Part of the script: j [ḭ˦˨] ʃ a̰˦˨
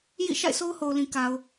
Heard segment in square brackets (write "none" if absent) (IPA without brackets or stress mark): ḭ˦˨